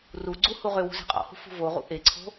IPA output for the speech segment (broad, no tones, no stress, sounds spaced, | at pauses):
r u ɡ͡ǀ u h u ʁ ø w ṳ z ɛ̤ qʼ ɔ̰ h ṳ f ṳ v o ʁ ṵ ʔ e ǀʰ o̤